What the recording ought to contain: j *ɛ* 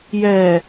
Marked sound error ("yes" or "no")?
no